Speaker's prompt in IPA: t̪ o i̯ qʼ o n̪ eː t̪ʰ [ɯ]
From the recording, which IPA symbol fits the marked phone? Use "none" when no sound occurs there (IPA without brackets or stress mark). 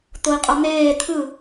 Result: ɯ